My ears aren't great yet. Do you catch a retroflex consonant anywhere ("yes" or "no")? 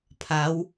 no